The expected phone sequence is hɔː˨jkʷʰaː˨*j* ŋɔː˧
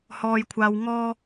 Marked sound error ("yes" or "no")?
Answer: yes